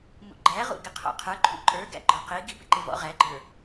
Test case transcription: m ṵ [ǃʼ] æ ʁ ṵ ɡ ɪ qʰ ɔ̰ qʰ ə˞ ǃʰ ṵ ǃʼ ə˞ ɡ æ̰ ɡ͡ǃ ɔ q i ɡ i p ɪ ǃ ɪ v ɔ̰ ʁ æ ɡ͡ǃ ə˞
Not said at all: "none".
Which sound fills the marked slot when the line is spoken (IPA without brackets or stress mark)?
ɡ͡ǃ